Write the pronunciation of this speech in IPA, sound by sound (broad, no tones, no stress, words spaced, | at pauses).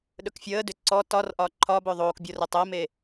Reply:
ɗɵkfʲəːdʏ ǀɔ tɒrʔɒ ǃʰɒbɵ ðˤoːkbʲorɘ tˤəːme